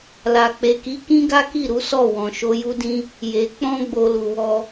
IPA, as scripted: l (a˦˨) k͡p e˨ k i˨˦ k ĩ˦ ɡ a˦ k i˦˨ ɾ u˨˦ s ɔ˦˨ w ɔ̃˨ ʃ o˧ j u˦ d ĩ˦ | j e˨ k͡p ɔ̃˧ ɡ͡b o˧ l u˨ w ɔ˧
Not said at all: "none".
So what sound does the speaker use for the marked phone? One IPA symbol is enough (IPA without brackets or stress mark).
a˨